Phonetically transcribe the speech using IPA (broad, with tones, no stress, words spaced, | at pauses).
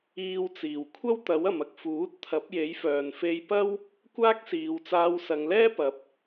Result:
iː˧wt͡siː˨˩w kʷʰɐ˥wt̪ɐ˨˥wɐ˨mɐ˧k̚ fuː˨˥t̚t̪ʰɐ˨˥p̚je˨˥jfœː˨n fe˧jpɐ˥w | kʷaː˥k̚siː˨˧w t͡saː˧wsɐ˨˧ŋlɛː˥pɐ˨˥p̚